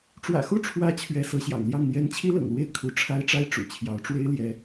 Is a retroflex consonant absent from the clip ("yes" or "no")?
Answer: no